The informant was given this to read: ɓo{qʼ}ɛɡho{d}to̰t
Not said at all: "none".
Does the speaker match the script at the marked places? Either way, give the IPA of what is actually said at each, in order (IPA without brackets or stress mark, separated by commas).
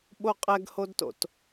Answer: qʼ, d